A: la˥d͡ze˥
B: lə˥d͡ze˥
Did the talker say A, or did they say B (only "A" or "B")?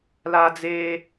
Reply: A